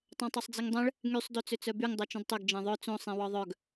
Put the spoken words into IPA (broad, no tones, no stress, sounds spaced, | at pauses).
tˤ œ̃ tˤ o sˤ d͡z i ŋ dˤ ɛ̃ ɭ | ŋ y sˤ d o t͡s ø t͡s œ b y ŋ dˤ œ t͡ʃ ũ d tˤ ø ɡ d͡ʒ ɛ̃ ðˤ œ t͡s õ sˤ ĩ w ɔ ðˤ œ ɡ